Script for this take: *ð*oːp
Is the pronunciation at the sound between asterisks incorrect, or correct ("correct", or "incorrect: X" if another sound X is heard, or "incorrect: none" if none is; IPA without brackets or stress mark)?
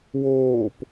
incorrect: w